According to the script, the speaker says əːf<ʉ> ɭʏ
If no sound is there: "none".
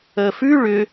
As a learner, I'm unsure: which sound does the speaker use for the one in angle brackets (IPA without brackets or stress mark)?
ʉ